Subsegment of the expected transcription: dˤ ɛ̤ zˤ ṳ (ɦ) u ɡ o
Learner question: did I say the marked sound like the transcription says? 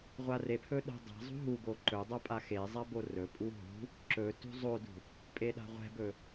yes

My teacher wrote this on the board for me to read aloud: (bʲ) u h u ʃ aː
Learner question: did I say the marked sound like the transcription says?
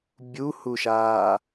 yes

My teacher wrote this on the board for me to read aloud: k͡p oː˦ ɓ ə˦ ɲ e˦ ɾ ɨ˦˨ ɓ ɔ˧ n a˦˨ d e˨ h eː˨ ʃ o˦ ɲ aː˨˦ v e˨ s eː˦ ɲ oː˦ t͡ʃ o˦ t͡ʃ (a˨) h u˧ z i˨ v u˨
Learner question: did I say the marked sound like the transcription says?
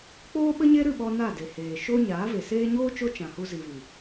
no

